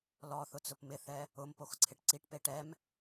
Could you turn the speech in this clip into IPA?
l ɔ θ ʊ t͡s ʊ p m ɪ θ ɛ | ʊ m p o x ǀʰ ɪ ʈ ǀ i ʈ p e ʈ ɛ m

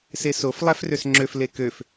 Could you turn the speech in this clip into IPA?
s e s o f lˠ æ f r ø s ŋ͡ǁ ø f l e k ø f

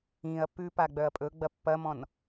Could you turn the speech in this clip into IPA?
ĩ ɐ̯ p ʉ p a ɡ͡b œ ɐ̯ pʼ ɵ ɡ͡b ɐ pː ɐ m ɔ̃ n

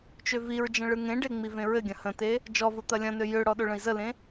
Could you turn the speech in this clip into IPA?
t͡ʃ ø v i ɹ d͡ʒ ə̃ ɭ ɯ ŋ ẽ ɖ e ŋ͡m i v ẽ ɹ ɘ ɡʲ ɐ̃ h ə̃ t e | d͡ʒ ɔ v o t̪ ɐ lʲ ɐ̃ n ø j ø ɽ ɔ ɗ o ɭ ə̃ i̯ z ə l ẽ

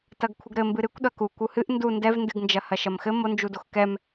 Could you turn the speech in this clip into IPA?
t ɐ ɡ kʷʰ ɘ ɡ ɾ ɘ m b ɨ ɾ ɨ kʷ ɗ ɐ k u kʷ u h ɨ ʔ n d u n d ɛ v n d ɨ ɡ n d͡ʒ ɐ h ɐ ʃ ɐ m x ɘ m o n d͡ʒ u d o x k ɛ m

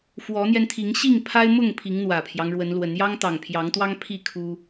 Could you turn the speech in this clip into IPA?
f w ɔ˨˦ n̪ j ɛ˧ n t̪ʰ i˨˦ ŋ ɕ i˥˨ ŋ pʰ a˦ ɪ̯ m ʊ˥˨ ŋ pʰ i˨˦ ŋ n̪ w ä˨˩ pʰ j ɑ˦ ŋ ɻ w ə˨˦ n l w ə˨˦ n j ɑ˦ ŋ t̪ ɑ˨˩ ŋ pʰ j ɑ˨˦ ŋ t̪ w ɑ˦ ŋ pʰ i˥˨ kʰ u˦

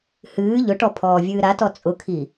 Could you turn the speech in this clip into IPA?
h ɨː ʎ ʊ ʈ ɔ pʰ ɔː vʲ ɨː ɾ a t ɔ t͡sʼ ʊ kʰ i

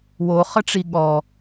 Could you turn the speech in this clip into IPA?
w o χ ə ʈ͡ʂ i ɠ ɔ

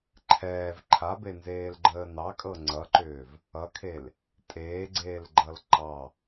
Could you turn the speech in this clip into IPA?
ǃʰ ɛː v ǃʰ a b e n z eː l ɡ͡ǃ əː n ɑ kʼ ɤ ŋ͡ǀ ʌ ǃ ʏː v | ʌ kʰ e l | tʼ eː ɡ͡ǀ eː l ɡ͡ǃ ʌ l ǃ ɑ

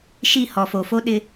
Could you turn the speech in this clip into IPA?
ʃ i˦˨ h ɔ˨ f o˨ f o˦ ɗ ɪ˦

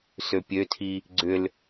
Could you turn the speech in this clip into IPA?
s ø pʲ ø tʰ i | ɡ͡ǀ ʏ l

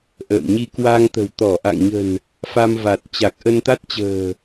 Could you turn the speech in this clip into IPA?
ʔ ə̰ː˧˨ m ɲ i˧ k w a˧ ŋ t̪ ə̤˨˩ w t̪ ɔ˧˩ ʔ a̰˧˨ ŋ ɲ ə̤˨˩ n | f a˧ m v a˨˩ t̚ t͡ɕ a˨˩ k̚ ʔ ə˧ n t̪ a˦˥ t̚ t͡ɕ ə̤ː˨˩

